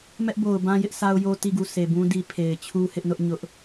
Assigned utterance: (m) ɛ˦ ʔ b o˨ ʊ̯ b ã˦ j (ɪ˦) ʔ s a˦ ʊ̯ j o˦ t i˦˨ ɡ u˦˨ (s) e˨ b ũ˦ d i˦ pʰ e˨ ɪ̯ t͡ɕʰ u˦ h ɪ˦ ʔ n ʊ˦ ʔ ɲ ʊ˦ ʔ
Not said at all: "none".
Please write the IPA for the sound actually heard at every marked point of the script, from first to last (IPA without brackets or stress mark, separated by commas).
m, ɪ˦, s